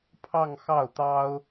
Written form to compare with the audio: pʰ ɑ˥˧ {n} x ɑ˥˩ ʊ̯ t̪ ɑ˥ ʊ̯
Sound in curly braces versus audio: incorrect: ŋ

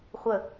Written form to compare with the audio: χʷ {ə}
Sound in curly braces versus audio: correct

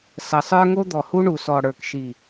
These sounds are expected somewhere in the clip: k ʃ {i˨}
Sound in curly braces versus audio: correct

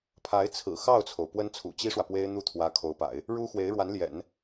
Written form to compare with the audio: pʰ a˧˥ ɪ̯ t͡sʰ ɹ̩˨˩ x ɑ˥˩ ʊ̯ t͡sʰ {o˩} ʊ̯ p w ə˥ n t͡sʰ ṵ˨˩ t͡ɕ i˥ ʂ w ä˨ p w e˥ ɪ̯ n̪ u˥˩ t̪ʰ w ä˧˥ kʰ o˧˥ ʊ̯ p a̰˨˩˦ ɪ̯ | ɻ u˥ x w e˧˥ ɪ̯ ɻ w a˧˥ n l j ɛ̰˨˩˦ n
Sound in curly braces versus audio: correct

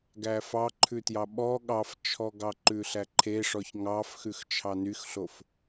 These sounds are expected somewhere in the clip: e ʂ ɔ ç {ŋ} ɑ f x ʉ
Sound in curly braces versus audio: correct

